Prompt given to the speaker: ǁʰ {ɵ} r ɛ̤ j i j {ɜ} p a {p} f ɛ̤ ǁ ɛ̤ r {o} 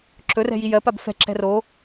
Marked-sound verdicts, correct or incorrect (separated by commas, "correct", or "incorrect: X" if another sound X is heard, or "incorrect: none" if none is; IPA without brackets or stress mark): correct, correct, incorrect: b, correct